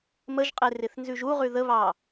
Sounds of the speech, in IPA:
m ə ʒ qʼ e r ɪ θ n z ʉ ʒ u ʁ ʉ ð ə β ɑ

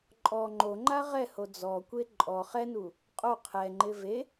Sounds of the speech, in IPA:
ǃʼ ɔ ŋ͡ǃ o ŋ͡ǃ a ʁ ɛ h o d͡z ɔ kʷ e ǃʼ ɔ χ ɛ n u | qʼ o qʰ ɛ ŋ͡ǃ ɪ v e

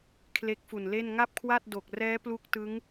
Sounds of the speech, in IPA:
kʰ l e˦˥ k̚ f u˨˩ n l e˥˩ n ŋ a˥˩ p̚ kʰ w a˥˩ t̚ d o˨˩ k̚ r ɛː˦˥ p l u˦˥ k̚ t ɯ˦˥ ŋ

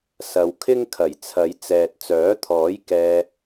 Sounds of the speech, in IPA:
s ɐ˨ w kʰ ɪ˥ ŋ kʰ ɐ˨˩ j t͡sʰ ɐ˨˧ j t͡s ɛː˨ t̚ t͡s œː˨˥ t̪ʰ ɔː˨˥ j k ɛː˧

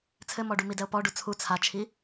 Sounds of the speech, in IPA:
t͡sʰ ɘ m ɔ ɖ u m i d ɛ o̯ p ɔ ɖ u t͡sʰ u t͡sʰ a t͡ʃʰ i

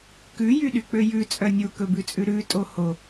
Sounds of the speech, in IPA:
k ʉ j y ɗ y k͡p ø j ʉ t͡sʼ œ nʲ u k ɵ b ʉ t͡sʼ ʉ ɾ ʉ tʼ o h o

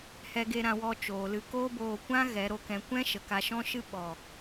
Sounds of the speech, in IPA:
h ɛ˧ ɡ e˧ ɾ ã˧ w ɔ˧ t͡ʃ oː˨ l ɨ˧ k oː˦ b oː˧ kʷ ã˦ ɣ ɛ˨˦ ɾ o˨ k ɛ̃˧ kʷ ɛ̃˦ ʃ ə˨ k a˧ ʃ ɔ̃˦ ʃ ɨ˦ ɓ ɔ˨

